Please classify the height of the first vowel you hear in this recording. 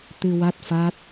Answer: high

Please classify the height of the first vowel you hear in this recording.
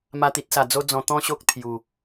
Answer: low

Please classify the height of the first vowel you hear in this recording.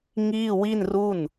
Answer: high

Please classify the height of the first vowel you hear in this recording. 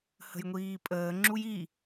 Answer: mid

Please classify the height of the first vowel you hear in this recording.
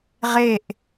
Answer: mid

